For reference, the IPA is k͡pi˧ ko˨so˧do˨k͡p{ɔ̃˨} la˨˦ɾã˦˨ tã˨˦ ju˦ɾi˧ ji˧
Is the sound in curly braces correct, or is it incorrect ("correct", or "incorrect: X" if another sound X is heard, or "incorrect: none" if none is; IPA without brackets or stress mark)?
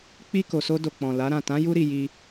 correct